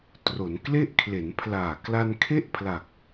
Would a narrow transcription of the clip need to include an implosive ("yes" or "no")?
no